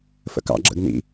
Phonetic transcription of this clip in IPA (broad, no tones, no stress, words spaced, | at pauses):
fə̰kɑ̰ɡ͡ǁə̰ɡ nḭ